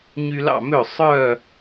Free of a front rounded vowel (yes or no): no